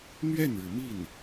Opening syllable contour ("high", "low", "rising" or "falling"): falling